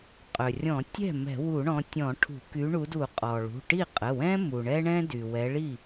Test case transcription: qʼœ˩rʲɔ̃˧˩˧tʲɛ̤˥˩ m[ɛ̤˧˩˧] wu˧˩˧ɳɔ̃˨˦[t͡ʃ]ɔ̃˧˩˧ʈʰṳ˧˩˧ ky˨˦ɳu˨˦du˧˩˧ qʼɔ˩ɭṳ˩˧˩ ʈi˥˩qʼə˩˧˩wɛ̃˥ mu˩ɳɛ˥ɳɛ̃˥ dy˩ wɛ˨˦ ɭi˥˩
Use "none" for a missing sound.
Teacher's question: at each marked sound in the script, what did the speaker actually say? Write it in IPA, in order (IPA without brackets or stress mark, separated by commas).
ɛ̤˧˩˧, tʲ